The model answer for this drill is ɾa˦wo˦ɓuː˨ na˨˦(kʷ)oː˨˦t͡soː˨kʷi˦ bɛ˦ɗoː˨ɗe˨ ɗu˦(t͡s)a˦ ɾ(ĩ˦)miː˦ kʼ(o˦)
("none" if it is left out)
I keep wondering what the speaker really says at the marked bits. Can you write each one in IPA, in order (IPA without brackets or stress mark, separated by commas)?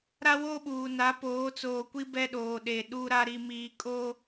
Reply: p, ɾ, i˦, o˦